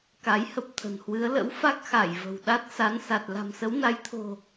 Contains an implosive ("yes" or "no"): yes